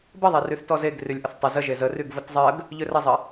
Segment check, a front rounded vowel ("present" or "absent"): present